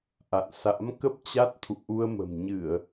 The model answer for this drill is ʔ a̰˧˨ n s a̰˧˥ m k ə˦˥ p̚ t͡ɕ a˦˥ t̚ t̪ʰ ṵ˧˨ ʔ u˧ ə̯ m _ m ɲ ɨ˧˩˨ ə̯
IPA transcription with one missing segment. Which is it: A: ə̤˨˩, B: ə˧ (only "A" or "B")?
A